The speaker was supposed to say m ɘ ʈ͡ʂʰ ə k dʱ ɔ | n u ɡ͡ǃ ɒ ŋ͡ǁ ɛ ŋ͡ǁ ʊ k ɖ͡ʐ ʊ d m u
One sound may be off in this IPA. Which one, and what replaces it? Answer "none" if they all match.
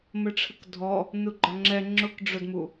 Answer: none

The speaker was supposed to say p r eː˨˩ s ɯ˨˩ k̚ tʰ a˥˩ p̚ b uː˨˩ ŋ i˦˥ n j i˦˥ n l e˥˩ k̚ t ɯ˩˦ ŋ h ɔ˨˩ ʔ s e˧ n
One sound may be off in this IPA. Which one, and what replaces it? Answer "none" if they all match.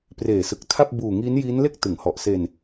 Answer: none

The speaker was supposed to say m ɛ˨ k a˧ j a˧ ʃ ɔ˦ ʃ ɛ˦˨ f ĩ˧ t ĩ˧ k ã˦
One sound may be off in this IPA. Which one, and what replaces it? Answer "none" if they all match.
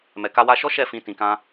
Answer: j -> w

